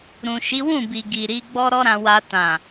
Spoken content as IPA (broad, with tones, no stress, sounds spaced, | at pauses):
ɾ ũ˨ ʃ i˨˦ w ũ˦˨ b i˨ ɡ i˨ ɾ i˨˦ ɡ͡b ɔ˦ ɾ ɔ˦ ɾ ã˧ w a˧ t ã˨